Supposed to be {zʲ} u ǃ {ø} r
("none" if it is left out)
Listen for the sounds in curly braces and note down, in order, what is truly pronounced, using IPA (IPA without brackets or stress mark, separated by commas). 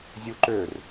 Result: zʲ, ø